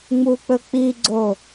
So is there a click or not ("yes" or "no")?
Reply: yes